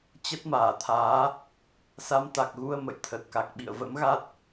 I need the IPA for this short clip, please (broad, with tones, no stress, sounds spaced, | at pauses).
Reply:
t͡ɕ ə˦˥ t̚ m aː˧˩ t̪ʰ aː˨˦ | s a˧ m t̪ a˨˩ k̚ ɣ u˧ ə̯ m ə̰˧˨ j t̪ʰ ə˨˩ t̚ k a˨˩ k̚ ɓ ḭ˧˨ ə̯ v ə̰˧˥ m ɣ a˦˥ t̚